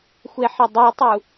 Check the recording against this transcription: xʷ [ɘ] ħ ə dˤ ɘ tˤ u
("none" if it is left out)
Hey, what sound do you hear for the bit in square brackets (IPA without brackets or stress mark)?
e